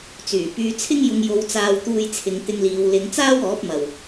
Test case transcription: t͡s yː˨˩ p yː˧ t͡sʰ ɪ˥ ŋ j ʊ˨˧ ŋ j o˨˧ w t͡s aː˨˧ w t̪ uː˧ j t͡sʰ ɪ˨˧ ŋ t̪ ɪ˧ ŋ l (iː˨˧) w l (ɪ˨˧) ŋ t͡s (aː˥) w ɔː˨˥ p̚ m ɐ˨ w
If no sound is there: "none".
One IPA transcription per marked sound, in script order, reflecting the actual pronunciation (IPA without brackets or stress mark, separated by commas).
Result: iː˨˧, ɪ˨˧, aː˥